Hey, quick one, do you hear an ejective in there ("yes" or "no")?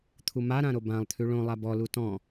no